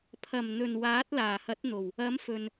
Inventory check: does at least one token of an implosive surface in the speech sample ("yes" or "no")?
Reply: no